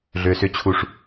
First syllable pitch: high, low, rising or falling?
low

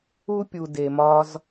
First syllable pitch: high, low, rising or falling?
high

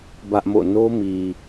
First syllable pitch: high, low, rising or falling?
high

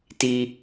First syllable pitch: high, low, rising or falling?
high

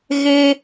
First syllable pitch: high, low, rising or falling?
high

